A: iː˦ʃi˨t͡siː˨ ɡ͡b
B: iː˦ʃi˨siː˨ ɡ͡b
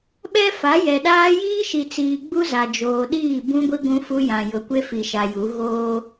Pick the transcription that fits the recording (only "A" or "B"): A